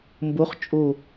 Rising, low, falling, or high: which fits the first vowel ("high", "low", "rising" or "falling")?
rising